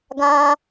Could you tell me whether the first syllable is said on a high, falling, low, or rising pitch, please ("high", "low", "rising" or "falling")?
high